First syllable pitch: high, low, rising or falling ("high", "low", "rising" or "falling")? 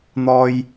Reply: high